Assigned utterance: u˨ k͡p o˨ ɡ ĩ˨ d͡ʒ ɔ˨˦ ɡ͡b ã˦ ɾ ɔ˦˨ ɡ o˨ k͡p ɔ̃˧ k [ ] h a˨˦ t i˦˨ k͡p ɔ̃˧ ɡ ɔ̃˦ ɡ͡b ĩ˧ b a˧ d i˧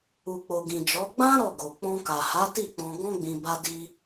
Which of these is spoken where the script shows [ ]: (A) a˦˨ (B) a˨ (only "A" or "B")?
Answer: B